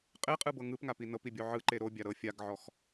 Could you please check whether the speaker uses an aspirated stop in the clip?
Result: no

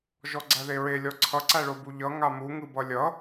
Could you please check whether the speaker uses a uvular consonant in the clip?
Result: no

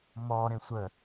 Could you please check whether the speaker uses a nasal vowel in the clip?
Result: yes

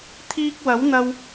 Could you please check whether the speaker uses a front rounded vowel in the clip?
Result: no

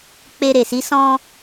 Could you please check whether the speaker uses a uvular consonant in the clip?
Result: no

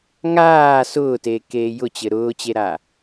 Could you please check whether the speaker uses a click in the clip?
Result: no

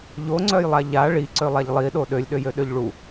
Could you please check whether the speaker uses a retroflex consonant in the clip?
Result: yes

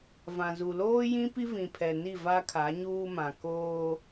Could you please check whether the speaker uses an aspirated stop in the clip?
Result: yes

